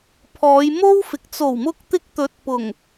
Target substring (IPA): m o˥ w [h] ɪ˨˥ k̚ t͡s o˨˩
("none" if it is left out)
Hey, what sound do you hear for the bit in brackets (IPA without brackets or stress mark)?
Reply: f